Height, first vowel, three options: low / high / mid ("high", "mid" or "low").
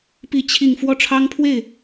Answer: high